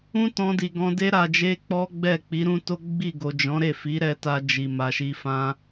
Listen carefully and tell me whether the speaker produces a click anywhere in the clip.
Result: no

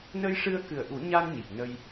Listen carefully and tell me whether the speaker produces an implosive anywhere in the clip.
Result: no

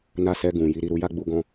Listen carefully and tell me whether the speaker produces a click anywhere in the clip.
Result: no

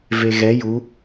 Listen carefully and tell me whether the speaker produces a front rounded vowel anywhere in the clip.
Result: no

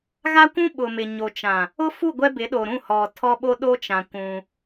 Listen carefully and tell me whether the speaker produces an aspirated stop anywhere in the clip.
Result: yes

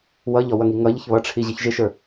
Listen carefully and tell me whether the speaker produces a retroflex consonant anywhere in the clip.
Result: yes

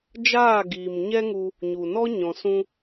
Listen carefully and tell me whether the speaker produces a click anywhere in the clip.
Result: no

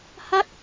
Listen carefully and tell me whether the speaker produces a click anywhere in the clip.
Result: no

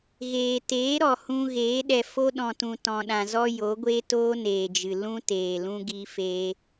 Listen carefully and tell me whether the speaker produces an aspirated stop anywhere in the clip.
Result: no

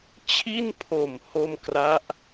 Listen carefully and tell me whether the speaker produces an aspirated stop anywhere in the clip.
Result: yes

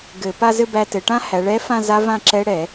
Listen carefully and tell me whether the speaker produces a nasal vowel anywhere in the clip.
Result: yes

